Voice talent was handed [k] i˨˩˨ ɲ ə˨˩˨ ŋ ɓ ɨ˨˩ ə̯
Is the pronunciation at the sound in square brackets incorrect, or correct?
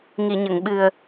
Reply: incorrect